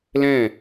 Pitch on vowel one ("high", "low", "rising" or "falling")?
falling